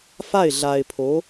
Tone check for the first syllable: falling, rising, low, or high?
falling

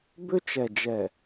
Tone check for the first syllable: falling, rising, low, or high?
high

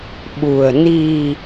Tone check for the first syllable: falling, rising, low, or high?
low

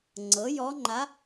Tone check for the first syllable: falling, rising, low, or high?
rising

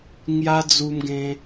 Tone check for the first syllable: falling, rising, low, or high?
high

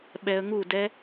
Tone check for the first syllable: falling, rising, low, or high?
low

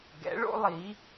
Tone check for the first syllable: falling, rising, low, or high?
rising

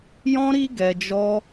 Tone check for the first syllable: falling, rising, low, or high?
high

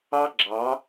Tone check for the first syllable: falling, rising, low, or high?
high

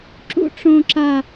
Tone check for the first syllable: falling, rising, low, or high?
high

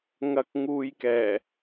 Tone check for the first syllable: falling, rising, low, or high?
low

